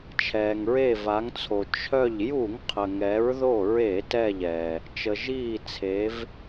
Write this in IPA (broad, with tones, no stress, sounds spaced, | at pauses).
t͡ʃʰ ɛː˩ ŋ ɹ e˧˩ v a˩˧ ŋ t͡sʰ o˩ t͡ʃʰ œ˧˩ ʎ j u˧˩˧ ŋ qʰ ə˩ ŋ ɛ˩˧ ɹ ð o˧˩ ɹ e˧˩˧ t ɛ˧˩ ʎ ɛ˩ | t͡ʃ ə˩ ʒ iː˧˩ t͡sʰ e˩˧ v